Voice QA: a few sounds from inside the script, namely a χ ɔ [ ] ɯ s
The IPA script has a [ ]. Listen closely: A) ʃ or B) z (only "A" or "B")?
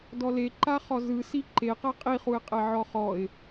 B